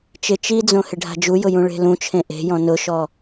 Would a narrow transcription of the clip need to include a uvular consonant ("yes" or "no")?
no